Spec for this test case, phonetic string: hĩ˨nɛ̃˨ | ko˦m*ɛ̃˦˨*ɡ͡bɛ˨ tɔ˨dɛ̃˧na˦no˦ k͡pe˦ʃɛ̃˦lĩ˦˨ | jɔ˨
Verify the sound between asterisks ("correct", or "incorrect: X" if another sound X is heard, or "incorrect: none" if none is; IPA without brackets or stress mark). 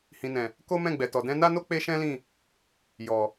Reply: correct